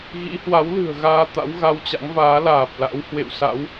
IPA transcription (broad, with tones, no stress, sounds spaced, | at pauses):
ɣ ḭ˧˥ h w a˨˦ w l ɨ̤˨˩ ə̯ ɣ aː˧ t̪ a̰˧˥ w ɣ a˧ w t͡ɕ a̰˧˥ ŋ v aː˨˦ l aː˨˩ p̚ l a̰˧˥ w h w ḛ˧˨ w s a̰˧˥ w